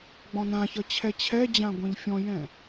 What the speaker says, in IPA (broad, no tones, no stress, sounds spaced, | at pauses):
ɡ͡b ɔ̃ n ã ç ʌ t͡ɕʰ ɛ t͡ɕʰ ɛ d͡ʑ ã ɡʷ ɛ̃ ʎ fʲ ɔ̃ j ɛ̃